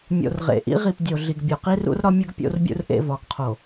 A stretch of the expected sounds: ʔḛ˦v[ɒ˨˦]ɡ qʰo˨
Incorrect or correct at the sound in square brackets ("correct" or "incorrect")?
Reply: correct